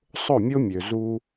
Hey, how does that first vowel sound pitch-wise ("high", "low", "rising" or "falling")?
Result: falling